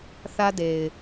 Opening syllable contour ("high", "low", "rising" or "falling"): high